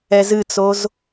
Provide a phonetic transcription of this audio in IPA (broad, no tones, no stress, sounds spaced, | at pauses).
ɛ z ɨ t͡s o z